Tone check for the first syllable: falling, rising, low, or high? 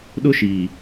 high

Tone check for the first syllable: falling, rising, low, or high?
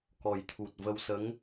low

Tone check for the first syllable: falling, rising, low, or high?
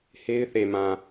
high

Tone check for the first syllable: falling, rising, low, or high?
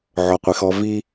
low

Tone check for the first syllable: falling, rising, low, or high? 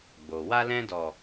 low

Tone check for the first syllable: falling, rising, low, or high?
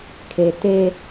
low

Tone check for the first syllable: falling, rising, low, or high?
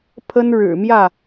high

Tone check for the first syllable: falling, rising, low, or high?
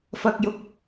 low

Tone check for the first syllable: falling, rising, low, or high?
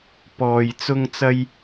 low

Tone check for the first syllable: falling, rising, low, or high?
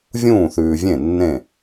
falling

